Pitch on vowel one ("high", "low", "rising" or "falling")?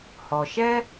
low